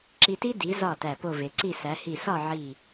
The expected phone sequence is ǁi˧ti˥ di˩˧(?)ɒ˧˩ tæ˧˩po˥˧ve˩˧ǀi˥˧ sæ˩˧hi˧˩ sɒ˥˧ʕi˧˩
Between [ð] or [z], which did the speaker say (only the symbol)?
z